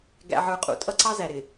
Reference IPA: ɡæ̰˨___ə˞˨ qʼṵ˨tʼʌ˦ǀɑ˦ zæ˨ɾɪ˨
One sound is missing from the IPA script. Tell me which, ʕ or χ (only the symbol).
ʕ